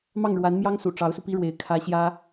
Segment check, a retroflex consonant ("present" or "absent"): present